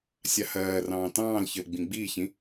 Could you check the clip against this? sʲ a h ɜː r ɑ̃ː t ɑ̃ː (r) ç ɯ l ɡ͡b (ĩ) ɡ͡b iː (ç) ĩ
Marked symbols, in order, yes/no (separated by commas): no, yes, yes